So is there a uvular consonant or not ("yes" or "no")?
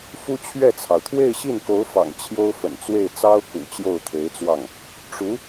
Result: no